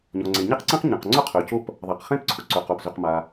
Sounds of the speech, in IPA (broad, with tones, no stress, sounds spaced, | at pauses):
ɲ ɔ˩ ŋ͡ǀ e˩ ɲ e˥ q ǀ ẽ˥ q ɲ ɐ̃˩ q ŋ͡ǀ ʊ˥ qʰ ø˩ c o˥ p | ðˤ a˩ q χ ẽ˥ p ǀʰ ʊ˩ ǀ ø˩ q o˩ p z ʏ˩ q m a˩